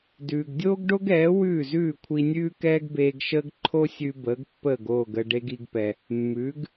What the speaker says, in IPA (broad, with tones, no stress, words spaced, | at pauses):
dʉː˩ɡdʲoː˥ɡɖo˥ɡɛː˩˥ wʉː˥˩zʉː˥˩kʷʰi˧nʲʉː˥ kɛː˥ɡbeː˧ɡʃəː˥ɡ ǃʰo˥sʲʉ˧ bəː˩˥ɡpːəː˥˩ɡoː˥˩ɡ ə˧ ɖe˥ɡi˧ɡpɛ˩ | mːʉː˩˥ɡ